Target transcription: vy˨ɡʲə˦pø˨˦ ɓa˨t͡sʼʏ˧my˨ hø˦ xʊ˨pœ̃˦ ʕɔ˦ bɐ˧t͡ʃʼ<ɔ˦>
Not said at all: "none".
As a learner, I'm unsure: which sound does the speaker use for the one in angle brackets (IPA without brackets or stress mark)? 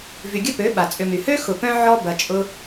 ʊ˦